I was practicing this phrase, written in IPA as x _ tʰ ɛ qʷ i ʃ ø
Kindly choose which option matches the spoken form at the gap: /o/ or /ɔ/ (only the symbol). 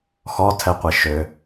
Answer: ɔ